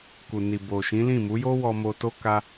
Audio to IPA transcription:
k u˨ n i˨ b o˨ ʃ ĩ˨˦ l ĩ˦˨ m u˨˦ j o˦ w ɔ˧ m o˧ t o˦ k a˦

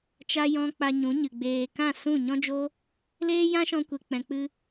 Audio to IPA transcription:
t͡ʃ a˨ j ɔ̃˧ k͡p a˧ ɲ ũ˨˦ ɲ ɨ˨ ɡ͡b eː˧ k ã˦˨ s ũ˦˨ ɲ ɔ̃˦ d͡ʒ o˦ | l eː˦ j ã˦ ʃ ɔ̃˧ kʷ e˨ k͡p ɛ̃˨ k͡p ɨ˧

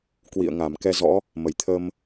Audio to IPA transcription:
k w ḭ˧˨ ə̯ ŋ a˧˩ m k ɛ˧ z ɔ̰˧˥ | m ə˨˩ j t̪ʰ ə˧ m

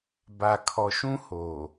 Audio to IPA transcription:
b a˨ kʰ ɔ˨ ʃ ũ˦ h o˨

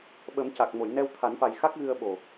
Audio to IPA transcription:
ɓ ə˨˩˦ m c a˨˩ k̚ m o˨˩˨ j n ɛ˧ w t̪ʰ a˨˩˦ n f a˨˩ j x a˦˥ k̚ ɣ ɨ˧ ə̯ ɓ o˨˩

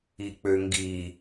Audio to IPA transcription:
i k͡p ø ŋ ɡ i

